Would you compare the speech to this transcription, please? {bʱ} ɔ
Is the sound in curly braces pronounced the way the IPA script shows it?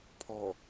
no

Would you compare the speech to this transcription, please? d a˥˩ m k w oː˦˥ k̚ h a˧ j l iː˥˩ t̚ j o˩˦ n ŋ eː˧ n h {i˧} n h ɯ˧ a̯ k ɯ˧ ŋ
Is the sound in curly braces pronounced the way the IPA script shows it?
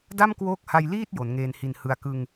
yes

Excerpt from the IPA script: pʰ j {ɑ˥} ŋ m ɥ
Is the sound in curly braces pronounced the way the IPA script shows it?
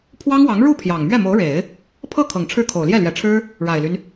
no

